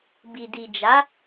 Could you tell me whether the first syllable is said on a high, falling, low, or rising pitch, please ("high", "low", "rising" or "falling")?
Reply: low